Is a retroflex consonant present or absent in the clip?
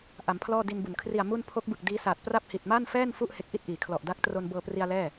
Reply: absent